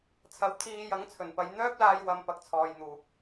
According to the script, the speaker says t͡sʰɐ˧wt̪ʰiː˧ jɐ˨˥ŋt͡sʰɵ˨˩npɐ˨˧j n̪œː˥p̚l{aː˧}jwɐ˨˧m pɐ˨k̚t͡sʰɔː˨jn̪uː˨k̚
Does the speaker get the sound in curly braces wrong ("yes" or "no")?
no